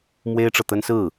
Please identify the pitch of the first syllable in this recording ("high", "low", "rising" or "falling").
high